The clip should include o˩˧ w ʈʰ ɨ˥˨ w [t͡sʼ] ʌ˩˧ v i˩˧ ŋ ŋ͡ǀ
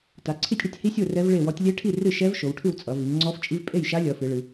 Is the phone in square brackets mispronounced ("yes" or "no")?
no